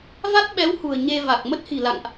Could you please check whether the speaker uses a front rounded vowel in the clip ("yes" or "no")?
no